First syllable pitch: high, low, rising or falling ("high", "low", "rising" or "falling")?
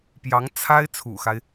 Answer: rising